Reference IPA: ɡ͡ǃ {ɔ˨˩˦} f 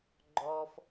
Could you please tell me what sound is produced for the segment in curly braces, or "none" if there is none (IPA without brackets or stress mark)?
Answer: ɔ˩